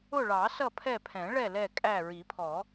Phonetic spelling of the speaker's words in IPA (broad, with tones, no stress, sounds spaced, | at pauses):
ʊ˦˨ ɭ ɑ˨˩˦ s ʌ˦˨ pʰ ɛ˦˨ pʰ ɛ̃˨˩˦ ɭ ɛ˦˨ l ɛ˦˨ kʼ æ˦˨ ɹ i˨˩˦ pʰ ɔ˨˩˦